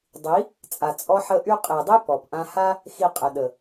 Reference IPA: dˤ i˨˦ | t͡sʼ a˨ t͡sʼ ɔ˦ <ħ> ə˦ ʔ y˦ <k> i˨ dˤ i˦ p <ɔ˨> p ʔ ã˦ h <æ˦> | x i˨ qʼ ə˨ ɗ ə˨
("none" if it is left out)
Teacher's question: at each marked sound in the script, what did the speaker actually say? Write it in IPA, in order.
ħ, qʼ, ɔ˨, a˦

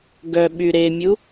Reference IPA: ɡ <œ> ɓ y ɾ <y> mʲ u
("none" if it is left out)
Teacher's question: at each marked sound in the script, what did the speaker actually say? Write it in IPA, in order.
œ, e

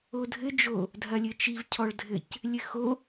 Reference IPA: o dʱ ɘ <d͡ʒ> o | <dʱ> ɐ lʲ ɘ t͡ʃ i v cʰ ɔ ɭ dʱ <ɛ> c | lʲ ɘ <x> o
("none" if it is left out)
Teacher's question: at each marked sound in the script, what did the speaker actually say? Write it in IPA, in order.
d͡ʒ, dʱ, ɘ, x

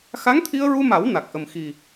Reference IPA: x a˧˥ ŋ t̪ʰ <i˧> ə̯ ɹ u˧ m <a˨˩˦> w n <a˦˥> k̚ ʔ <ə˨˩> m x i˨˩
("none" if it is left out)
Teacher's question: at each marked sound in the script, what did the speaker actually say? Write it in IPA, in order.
i˧, a˨˩˦, a˨˩, ə˨˩

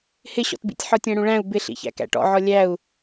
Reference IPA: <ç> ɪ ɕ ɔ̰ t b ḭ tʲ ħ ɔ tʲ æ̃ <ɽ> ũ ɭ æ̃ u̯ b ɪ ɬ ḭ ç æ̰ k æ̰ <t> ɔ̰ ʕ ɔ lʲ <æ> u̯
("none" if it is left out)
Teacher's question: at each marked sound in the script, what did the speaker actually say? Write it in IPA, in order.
h, ɽ, ʈ, æ

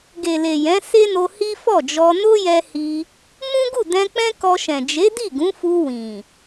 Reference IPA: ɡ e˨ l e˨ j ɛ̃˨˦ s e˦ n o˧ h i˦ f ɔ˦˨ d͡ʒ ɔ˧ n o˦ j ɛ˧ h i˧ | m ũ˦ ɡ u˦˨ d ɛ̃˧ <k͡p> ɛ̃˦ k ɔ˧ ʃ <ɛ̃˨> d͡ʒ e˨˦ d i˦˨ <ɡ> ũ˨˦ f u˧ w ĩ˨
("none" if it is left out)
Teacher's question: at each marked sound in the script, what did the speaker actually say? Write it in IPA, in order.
k͡p, ɛ̃˨, ɡ

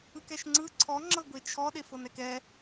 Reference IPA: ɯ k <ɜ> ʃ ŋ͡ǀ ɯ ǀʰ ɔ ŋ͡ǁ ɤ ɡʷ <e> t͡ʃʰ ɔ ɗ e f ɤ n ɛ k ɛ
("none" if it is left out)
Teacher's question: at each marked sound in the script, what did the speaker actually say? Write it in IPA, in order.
ɛ, e

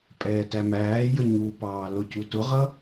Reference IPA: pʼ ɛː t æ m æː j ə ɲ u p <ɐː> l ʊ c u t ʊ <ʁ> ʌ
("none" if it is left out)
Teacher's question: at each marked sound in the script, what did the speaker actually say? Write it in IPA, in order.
ɑː, ʁ

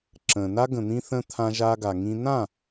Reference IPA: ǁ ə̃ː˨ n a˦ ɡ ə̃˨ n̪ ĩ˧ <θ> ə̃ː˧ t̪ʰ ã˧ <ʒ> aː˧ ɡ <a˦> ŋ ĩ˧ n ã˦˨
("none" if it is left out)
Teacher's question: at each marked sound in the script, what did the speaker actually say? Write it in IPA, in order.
θ, ʒ, a˨

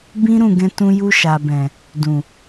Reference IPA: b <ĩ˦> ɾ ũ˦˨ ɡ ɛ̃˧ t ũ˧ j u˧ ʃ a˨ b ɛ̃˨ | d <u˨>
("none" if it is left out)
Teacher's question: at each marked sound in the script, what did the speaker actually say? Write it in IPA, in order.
ĩ˦, ũ˨

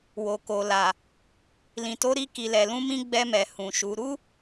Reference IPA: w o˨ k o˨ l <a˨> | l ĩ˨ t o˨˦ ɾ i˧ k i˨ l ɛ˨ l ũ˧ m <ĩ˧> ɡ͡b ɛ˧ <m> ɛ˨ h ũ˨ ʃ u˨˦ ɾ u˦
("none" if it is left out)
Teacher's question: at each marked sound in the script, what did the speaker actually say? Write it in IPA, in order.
a˨, ĩ˧, m

